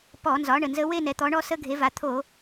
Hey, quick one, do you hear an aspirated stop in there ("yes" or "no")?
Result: yes